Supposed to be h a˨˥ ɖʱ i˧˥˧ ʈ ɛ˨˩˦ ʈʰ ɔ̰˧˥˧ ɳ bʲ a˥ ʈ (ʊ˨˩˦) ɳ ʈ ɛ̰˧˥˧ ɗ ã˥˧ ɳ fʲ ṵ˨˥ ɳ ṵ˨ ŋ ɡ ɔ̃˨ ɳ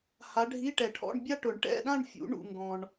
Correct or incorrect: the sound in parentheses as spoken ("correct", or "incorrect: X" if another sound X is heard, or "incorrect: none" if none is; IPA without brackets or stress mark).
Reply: correct